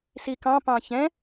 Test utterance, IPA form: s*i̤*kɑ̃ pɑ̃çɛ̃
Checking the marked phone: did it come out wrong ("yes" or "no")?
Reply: yes